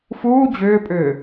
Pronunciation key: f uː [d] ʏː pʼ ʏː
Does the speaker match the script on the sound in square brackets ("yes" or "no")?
no